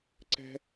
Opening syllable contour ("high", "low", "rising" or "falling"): high